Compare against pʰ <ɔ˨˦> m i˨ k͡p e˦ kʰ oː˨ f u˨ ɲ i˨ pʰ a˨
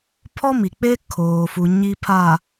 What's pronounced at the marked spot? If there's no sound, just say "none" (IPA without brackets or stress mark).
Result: ɔ˦